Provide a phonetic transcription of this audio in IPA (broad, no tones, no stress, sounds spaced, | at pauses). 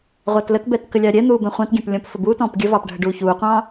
ʁʷ ɑ t l ə t b ɛ t k ə lʲ ɑ ɾʲ ɛ n̪ uː b ɛ̃ χʷ ɑ̃ t ɡʲ ɛ̃ p lʲ ɔ̃ p f ə b u t ɔ̃ː p ɡʲ ə v ɑ p ɖʱ ə ɖ uː ç uː qʷ ɑ̃ː